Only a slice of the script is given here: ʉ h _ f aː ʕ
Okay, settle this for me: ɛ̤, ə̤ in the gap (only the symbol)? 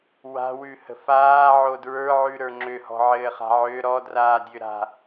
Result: ə̤